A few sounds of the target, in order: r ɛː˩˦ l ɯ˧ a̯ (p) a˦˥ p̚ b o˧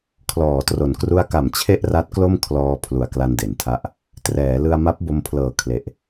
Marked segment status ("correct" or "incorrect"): incorrect